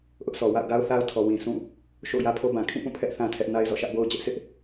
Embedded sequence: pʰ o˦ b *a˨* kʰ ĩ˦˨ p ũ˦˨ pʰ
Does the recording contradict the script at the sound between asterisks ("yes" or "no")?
yes